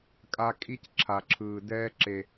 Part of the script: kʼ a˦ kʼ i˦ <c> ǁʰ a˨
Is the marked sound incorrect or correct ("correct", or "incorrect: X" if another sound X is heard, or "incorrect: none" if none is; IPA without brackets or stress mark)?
correct